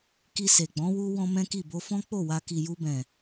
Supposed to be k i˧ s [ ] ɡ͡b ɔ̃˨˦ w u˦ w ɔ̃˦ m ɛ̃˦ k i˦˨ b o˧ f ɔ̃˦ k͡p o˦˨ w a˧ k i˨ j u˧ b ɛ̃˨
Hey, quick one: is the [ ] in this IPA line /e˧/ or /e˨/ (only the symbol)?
e˨